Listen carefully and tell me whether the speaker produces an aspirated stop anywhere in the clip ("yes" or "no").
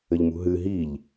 no